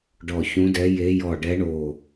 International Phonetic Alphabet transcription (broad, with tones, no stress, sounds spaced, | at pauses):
ɖ ɔ˧˩ ç ũ˧˥ d ɛ˧˥ j e˧˥ j ɔ˧˩ ɖ ɛ˧˥ ɳ o˧˩